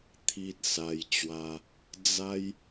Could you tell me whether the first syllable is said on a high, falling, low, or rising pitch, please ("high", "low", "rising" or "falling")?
high